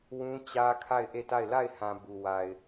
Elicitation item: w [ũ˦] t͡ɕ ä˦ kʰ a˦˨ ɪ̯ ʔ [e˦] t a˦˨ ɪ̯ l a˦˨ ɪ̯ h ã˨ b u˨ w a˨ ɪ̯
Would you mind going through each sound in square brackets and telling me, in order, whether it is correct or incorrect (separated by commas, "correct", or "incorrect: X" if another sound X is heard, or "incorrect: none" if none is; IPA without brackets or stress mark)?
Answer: correct, incorrect: e˦˨